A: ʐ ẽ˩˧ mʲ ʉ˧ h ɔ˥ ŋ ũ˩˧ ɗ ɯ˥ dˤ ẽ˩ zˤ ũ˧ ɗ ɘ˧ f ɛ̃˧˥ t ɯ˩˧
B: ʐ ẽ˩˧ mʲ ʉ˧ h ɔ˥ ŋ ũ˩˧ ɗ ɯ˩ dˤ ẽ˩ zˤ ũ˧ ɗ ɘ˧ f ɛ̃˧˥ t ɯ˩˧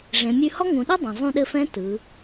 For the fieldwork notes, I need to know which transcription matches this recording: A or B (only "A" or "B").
A